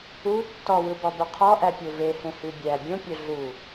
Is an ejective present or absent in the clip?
absent